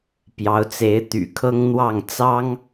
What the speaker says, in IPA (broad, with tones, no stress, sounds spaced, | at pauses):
p j ɑ˧˥ ʊ̯ t͡s e˧˥ ɪ̯ t̪ y̰˨˩ kʰ ɤ˥ ŋ n̪ w ɑ˥˩ ŋ t͡s ɑ˥ ŋ